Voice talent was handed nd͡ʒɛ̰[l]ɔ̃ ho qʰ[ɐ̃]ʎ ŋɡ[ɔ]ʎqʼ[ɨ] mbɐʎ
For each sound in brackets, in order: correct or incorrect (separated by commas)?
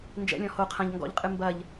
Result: incorrect, correct, incorrect, correct